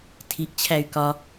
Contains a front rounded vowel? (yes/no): yes